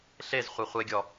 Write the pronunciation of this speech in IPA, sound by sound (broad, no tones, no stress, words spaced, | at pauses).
ɬez χʷeχʷeɡʲɔ